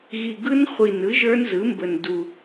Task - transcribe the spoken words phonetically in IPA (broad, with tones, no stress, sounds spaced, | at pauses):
ɣ i˨˩ ɡ ɯ˦˥ n χʷ i˨˩ n ɯ˩˥ ʒ ə˞˦˥ n z ɯ˩˥ m b ə˨˩ n d u˨˩